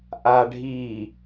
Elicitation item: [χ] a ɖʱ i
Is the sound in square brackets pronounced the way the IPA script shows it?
no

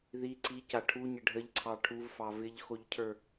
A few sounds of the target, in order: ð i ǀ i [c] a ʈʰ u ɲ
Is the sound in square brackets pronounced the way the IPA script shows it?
yes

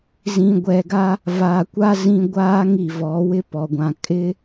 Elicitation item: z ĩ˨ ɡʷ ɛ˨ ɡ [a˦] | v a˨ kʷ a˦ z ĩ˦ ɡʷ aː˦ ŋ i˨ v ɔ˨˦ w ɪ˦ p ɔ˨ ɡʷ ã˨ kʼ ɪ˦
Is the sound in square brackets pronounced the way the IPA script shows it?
yes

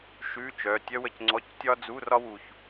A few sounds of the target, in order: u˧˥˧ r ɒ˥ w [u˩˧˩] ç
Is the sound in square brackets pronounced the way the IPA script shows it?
no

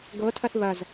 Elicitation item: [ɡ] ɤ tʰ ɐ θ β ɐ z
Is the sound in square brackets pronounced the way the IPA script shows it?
yes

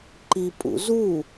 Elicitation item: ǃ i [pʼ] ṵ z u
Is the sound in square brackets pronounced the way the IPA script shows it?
yes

